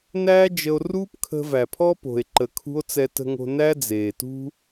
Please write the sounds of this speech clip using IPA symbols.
næː˦d͡ʒə˧o̯ruː˦pkʰə̤˧ væ˨pʰɔ˦po̤˨e̯ǃə˨ kʰṳ˦o̯ t͡sɛ˧tə̤˧ŋo̤˧ næ˦d͡zeː˨tṳ˦

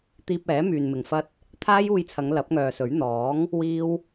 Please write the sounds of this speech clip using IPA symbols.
t̪iː˧p̚ɛː˨˥ myː˨nmɪ˨ŋfɐ˥t̚ | t̪ʰaː˥juː˧jt͡sʰɐ˨˧ŋ lɐ˨˥p̚ŋœː˨sɵ˨˥ɥ n̪ɔː˨˥ŋ | wiː˥w

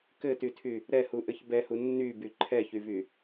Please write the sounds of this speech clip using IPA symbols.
kɘtytʰy | ɾɛhuʔɘç bɛhu nːyby ǃʰɛçyvy

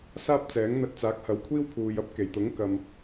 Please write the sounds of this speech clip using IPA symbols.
saː˥p̚t͡sɛː˨˥ŋ n̪ɐ˧t̚t͡saː˨˥k̚hɐ˨˧wkʷʰiː˥w pʰuː˨jɐ˥p̚ ke˨˩jt̪ʊ˨˥ŋ kɐ˨m

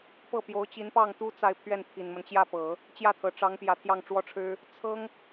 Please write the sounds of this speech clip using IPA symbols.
pɤ˥˩pjo˧˥ʊ̯ t͡ɕi˧˥npɑ˥˩ŋt̪u˥ t͡sa˥˧ɪ̯pʰɥɛ˥˩n pʰi˨˩nmə˦nt͡ɕjä˥˩pɤ˨˩˦ | t͡ɕjä˥˩t̪ʰɤ˨˩ʈ͡ʂɑ˧˥ŋ pjä˧˥t̪ʰjɑ˥˩ŋʈ͡ʂwɔ˥ʈ͡ʂʰɻ̩˥ | t͡sʰɤ˥ŋ

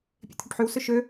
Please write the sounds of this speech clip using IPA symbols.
pʲḛt̪ʰøʈħyw sɵʃø

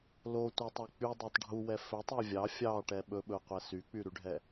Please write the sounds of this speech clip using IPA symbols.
lotʷætˤæ k͡pydˤætˤ ɖʱuwɛ fɵtˤɛ vʲɑ fʲɑʈɛ ɓɵɓɵu̯qʷɛ syk͡pyɾyɖʱɛ

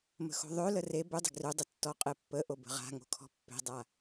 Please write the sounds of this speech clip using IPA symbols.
mə̤xo̤ðˤø ləre bødˤə̤ ɡrødˤətːɔqʼe pːəʔo bə̤ʁa̤ŋo̤ kʰɔ̤pːe̤dˤa

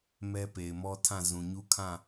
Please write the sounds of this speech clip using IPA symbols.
mɛ˦pe˨ɪ̯mɔ˦tʰã˦˨ zũ˨ɲu˦kʰã˦˨

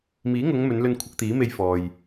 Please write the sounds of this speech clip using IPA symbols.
miː˨˥ŋʊ˨˧ŋ mɵ˨˧nlɵ˧n kʷʰɪ˧k̚t̪iː˨˥ me˧j fɔː˨j

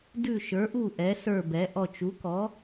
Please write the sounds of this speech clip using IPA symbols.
dʉ˦˨ʃə˞˩˥ʔu˦˨ ʔɛ˩˥sə˞˦˨bɛ˩˥ʔɔ˦˨t͡ʃ u˩˥kɔ˩˥

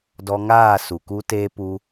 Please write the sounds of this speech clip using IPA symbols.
dɔ˧ŋaː˦˨ su˨ku˦teː˦ pu˦

